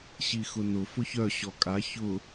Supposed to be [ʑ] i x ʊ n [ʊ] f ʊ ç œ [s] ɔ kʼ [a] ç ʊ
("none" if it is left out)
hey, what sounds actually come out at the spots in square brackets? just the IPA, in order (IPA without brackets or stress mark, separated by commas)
ɕ, ʊ, ɕ, a